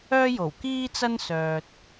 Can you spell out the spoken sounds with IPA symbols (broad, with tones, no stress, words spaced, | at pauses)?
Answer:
œː˥jo˨˩wkiː˥t͡sɐ˥n sœː˨t̚